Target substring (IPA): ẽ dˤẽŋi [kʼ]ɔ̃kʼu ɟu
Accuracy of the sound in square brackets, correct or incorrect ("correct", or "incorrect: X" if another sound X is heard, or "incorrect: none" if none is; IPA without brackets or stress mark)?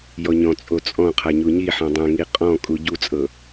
incorrect: qʼ